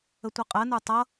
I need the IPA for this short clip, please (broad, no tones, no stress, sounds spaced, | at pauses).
ə tʷ ʌ qʼ ɜ n ə˞ tˤ ʌ